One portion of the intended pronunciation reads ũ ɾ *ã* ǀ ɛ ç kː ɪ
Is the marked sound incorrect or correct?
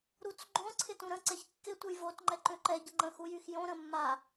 incorrect